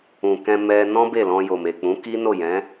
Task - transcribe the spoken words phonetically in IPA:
ũ˨ k ɛ̃˧ m ɛ˧ n ɔ̃˦ b e˦˨ l ɔ̃˧ j o˨ m e˨ k͡p ũ˨˦ k i˦ n o˦˨ j ɛ̃˨˦

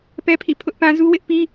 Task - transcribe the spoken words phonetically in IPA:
p ɛ˦ pʰ ḭ˦˨ pʰ ʊ˦ ʔ p ã˦ z u˦ w ɪ˦ ʔ p i˦

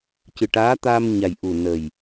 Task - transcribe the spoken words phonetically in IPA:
c ɨ˨˩ ʈ aː˧˥ t̪ aː˧ m ɲ a˨˩ j ʔ u˨˩ n ə˨˩ j

